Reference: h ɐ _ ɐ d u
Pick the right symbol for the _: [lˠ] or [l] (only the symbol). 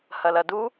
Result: l